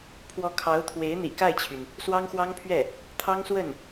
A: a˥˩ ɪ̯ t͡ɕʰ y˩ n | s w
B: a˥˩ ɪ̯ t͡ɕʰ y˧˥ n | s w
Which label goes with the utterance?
A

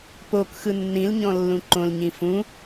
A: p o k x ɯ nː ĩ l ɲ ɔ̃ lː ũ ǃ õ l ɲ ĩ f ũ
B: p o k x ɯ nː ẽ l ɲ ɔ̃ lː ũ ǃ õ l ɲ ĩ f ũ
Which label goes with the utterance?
A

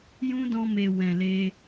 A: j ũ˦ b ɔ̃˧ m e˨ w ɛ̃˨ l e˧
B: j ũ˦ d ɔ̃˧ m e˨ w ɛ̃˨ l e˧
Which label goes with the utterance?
B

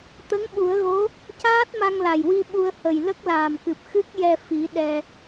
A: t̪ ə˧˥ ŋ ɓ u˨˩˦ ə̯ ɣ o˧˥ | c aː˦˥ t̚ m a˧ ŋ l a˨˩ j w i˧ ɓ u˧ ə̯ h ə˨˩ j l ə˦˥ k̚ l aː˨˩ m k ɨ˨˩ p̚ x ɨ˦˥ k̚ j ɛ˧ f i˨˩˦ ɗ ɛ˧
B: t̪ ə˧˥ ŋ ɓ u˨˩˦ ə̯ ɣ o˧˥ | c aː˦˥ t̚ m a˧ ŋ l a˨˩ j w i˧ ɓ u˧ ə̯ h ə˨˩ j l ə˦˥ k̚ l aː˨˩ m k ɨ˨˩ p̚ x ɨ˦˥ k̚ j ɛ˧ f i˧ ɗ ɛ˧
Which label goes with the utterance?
A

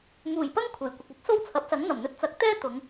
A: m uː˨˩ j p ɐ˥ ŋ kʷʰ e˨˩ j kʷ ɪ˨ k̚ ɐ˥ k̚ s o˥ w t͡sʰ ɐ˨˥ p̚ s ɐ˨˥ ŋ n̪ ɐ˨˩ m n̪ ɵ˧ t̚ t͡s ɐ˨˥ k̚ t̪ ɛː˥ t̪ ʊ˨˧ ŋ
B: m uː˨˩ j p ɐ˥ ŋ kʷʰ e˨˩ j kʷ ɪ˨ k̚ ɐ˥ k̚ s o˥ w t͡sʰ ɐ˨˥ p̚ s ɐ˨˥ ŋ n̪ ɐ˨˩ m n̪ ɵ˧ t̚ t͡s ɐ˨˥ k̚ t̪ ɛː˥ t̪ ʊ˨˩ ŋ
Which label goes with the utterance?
A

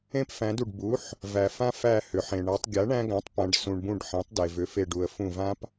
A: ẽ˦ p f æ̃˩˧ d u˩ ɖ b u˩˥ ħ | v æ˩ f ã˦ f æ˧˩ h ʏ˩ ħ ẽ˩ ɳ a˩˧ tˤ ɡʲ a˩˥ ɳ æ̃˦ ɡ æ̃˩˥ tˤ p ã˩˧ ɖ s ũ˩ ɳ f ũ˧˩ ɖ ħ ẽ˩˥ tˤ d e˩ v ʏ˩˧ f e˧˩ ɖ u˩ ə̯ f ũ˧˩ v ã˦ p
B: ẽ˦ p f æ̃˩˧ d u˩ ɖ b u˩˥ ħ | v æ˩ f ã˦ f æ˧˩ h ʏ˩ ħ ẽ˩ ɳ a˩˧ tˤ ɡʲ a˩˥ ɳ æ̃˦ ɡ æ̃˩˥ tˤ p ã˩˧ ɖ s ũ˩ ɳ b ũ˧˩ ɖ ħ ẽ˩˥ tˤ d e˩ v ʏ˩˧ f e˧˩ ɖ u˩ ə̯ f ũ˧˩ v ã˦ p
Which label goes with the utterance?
B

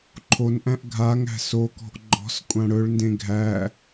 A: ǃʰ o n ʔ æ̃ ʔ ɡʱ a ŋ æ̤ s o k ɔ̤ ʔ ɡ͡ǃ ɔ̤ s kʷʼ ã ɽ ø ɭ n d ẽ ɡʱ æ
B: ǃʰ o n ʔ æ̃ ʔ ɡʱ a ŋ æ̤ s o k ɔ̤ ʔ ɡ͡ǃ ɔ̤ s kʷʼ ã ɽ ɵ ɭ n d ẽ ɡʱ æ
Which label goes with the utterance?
B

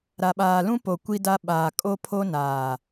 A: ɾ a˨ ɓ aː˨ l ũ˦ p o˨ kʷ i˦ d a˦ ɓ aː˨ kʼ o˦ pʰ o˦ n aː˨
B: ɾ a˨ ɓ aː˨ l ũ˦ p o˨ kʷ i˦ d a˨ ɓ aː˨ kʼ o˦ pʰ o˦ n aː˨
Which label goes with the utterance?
A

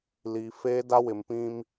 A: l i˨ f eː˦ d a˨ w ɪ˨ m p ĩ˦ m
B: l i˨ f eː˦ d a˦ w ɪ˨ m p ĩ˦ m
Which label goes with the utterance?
B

